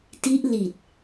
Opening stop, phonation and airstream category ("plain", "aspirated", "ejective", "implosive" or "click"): plain